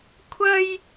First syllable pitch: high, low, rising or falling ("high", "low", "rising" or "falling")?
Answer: high